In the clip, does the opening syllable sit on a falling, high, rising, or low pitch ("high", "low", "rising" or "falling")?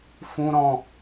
high